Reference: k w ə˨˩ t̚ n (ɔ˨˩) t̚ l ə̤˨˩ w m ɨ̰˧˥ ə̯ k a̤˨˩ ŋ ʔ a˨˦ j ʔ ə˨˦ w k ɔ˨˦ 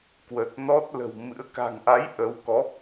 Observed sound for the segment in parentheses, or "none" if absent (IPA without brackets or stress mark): ɔ˦˥